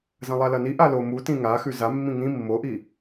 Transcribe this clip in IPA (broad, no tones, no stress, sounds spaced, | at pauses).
z ɐ̃ lˠ a l ɐ n i ʔ a l o m u t ĩ ŋ a x ʉ z a mː ĩ ŋ ĩ mː o ʔ i